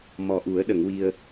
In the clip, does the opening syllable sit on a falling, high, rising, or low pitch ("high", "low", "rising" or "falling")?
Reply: low